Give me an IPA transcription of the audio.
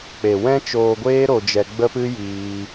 k͡p e˨ w ɛ̃˦ t͡ʃ oː˧ ɡʷ eː˦ ɾ o˧ d͡ʒ ɛ˧ ɡ͡b ə˦ p ɨ˦ j iː˧

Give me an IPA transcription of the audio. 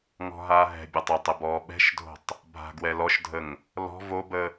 ŋ ɔ̤ ɦ aː ɦ ɛ̤ bʲ ɒ tˤ ə tˤ ə b ɔː ɓ ɛ̤ ʃ dʱ o̤ tˤ | bʱ a̤ ɡ w ɛ l ɔ ʃ dʱ ə ŋ | l ɔ̤ v o b ə

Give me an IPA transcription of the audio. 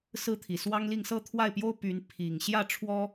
s ɹ̩˥˩ t̪ʰ i˨˩ s w ɑ˥ ŋ l i˥˧ ŋ s ɤ˥˧ t̪ʰ w a˥˩ ɪ̯ p j o˥ ʊ̯ p y˧˥ n pʰ i˨˩ ŋ ɕ j ä˥˩ ʈ͡ʂʰ w ɔ˥

